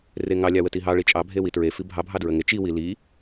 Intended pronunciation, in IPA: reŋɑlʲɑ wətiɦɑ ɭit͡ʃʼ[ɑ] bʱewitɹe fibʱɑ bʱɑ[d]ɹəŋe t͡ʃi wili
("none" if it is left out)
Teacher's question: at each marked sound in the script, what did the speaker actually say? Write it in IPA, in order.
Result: ɑ, d

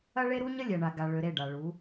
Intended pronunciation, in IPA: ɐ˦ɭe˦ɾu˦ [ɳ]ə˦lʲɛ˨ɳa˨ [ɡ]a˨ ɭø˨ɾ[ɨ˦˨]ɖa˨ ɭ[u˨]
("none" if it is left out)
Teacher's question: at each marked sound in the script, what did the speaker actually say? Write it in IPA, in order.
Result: ɲ, ɡ, e˦˨, u˨˦

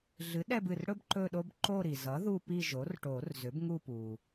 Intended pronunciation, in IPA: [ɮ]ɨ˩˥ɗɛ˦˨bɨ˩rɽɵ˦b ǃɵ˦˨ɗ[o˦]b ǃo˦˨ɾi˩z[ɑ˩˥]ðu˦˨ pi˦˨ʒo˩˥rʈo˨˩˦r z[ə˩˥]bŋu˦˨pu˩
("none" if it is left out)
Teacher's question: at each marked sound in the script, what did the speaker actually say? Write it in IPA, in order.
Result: ɮ, o˦, ʌ˩˥, ʏ˩˥

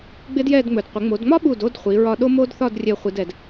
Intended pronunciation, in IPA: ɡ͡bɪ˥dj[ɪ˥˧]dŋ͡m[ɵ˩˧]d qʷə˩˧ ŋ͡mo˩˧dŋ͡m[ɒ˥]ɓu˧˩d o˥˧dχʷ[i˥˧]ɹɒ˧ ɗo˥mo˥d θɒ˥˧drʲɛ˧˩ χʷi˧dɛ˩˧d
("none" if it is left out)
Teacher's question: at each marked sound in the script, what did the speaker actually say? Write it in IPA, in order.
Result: ɛ˥˧, ɵ˩˧, ɒ˥, i˩˧

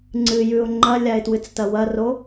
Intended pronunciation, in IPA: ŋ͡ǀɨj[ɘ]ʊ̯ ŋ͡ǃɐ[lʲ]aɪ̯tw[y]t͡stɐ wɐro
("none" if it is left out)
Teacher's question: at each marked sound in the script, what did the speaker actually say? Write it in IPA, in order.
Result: ʉ, lʲ, ɨ

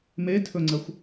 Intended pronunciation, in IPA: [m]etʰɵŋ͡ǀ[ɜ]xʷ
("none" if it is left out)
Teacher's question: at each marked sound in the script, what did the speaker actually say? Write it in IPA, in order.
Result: m, ɜ

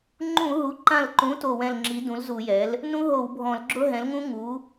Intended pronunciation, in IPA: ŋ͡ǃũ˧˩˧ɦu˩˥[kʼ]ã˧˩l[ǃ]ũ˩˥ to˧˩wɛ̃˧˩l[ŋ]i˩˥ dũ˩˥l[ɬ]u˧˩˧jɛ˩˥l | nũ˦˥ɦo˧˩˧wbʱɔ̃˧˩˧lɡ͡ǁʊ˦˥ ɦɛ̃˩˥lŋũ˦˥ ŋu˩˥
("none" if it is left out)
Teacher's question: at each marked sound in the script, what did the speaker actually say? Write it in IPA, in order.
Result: ǃ, ǃ, ŋ͡ǁ, z

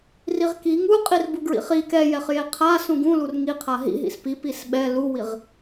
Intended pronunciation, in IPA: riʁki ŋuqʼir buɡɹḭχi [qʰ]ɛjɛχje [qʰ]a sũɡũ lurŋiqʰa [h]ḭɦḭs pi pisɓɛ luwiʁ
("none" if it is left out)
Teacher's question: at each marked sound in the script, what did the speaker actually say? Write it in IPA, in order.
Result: k, qʰ, ɦ

